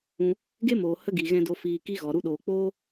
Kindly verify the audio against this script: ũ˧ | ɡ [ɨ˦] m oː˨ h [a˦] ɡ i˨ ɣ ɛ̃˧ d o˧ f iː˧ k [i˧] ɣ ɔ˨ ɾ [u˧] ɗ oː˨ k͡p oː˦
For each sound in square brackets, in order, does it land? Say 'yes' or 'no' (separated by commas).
no, no, no, yes